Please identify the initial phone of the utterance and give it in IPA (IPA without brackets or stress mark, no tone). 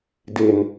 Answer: d